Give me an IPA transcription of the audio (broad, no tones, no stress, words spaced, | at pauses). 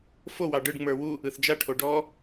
fo wɑɖɯɖ ŋ͡mə˞wu | ɯθd͡ʒa ʈʰoɖɔ